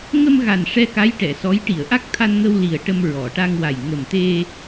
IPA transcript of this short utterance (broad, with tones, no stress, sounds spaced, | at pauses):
ŋ ə˧ m ɣ a˨˩ n ʂ ɛ˧ k a˧˥ j ʈ ɛ˨˩˨ s ɔ˧˥ j ʈ i˨˩˨ ə̯ ʔ a˦˥ k̚ t̪ʰ a˧ n ŋ ə˧ w l i˨˩ ə̯ ʈ ə˧ m ɹ ɔ˨˩˨ ʈ a˧ ŋ w a˨˩ j ŋ ə˨˩ m t̪ e˧